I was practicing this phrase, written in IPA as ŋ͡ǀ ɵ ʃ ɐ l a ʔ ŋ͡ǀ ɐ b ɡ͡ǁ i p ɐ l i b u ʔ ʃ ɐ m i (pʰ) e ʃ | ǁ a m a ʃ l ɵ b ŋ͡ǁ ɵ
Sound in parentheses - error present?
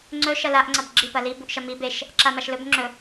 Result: yes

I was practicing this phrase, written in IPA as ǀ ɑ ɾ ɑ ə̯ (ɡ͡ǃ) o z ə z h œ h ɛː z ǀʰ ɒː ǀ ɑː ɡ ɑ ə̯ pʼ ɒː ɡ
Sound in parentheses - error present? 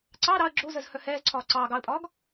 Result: yes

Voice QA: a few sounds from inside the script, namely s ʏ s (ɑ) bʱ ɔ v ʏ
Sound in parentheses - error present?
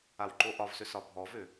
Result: yes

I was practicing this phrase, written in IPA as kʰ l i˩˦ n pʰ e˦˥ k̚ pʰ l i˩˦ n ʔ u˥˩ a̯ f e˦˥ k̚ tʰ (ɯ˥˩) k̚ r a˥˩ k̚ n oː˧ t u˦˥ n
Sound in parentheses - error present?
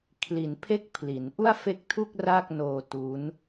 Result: yes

